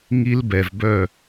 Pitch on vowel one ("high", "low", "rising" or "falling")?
high